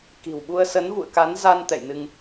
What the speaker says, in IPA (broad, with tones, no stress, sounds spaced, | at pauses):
k i̤˨˩ w ɓ u˧ ə̯ s ə˨˦ n v ṵ˧˨ ə̯ k a˨˦ n z a˧ n t̪ ɛ̰˧˨ j n ɨ˧ ŋ